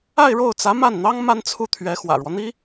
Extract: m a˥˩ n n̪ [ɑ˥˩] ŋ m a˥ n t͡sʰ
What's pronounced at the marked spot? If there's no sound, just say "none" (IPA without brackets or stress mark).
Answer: ɑ˥